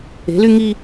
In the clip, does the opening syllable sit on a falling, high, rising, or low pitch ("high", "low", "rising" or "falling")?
rising